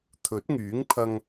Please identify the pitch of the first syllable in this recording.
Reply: rising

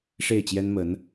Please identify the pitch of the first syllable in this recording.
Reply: falling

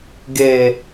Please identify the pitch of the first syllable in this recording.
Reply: low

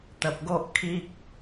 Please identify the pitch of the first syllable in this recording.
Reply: low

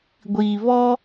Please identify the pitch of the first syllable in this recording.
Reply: low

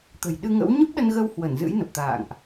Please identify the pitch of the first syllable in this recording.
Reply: low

